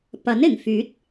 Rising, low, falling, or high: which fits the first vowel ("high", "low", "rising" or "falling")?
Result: rising